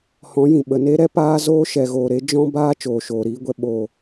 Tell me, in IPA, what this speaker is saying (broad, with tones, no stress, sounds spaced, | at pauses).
h ɔ̃˨˦ j ĩ˨ ɓ ə˨ n e˦ ɾ ɛ˦ p aː˧ z oː˦ ʃ ɛ˨ ɣ oː˨ ɾ e˨˦ d͡ʒ ɔ̃˦ b aː˦ t͡ʃ oː˨ ʃ oː˨ ɾ iː˧ ɡʷ ɛ˧ ɓ oː˨